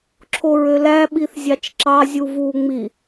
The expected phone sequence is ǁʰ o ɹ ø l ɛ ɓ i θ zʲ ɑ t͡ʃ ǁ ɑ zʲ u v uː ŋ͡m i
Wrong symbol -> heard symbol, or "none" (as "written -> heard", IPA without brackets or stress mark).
ɛ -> æ